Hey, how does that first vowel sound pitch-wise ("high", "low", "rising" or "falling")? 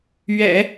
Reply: low